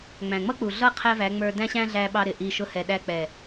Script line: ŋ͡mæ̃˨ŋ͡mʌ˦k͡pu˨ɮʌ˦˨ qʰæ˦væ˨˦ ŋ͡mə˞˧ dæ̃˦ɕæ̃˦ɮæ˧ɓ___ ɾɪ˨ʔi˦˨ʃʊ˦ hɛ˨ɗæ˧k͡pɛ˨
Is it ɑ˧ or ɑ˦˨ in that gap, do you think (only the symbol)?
ɑ˧